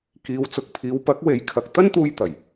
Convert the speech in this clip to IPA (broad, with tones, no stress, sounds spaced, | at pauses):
k iː˨˧ w t͡s ʊ˨ k̚ pʰ iː˨˧ w p ɐ˨˥ k̚ w e˨˥ j kʰ ɐ˨ k̚ t̪ ɐ˥ n t̪ uː˧ j t̪ ɐ˨˩ j